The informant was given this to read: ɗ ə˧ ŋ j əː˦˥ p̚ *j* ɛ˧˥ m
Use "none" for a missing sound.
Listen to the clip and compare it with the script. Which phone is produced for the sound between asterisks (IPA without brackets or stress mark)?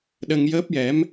j